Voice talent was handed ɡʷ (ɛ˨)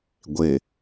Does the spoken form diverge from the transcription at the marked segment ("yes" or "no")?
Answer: yes